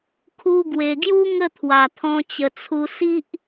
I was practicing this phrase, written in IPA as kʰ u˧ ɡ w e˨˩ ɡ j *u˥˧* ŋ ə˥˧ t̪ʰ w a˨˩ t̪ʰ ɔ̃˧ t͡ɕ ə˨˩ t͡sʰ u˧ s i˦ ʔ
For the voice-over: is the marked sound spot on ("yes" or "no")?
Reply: no